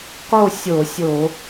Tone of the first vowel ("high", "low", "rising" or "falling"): falling